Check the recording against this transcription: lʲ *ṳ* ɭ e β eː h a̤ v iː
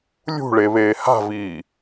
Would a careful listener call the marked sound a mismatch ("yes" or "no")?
no